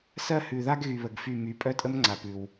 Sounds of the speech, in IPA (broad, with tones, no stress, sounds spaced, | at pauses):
s ɜ˦˨ h ʉ˨ ð a˦ ɡ ɣ y˨ β ə˨ ɡ f y˦˨ m y˨ pʼ œ˦ tʼ ə˦ m ŋ͡ǀ a˨ p ʉ˨ w